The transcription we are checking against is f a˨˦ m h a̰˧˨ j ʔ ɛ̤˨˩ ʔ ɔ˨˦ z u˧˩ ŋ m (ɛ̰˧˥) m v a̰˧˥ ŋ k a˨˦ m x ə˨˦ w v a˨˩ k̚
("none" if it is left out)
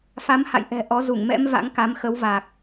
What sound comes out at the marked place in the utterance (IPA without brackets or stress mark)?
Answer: ɛ̰˧˥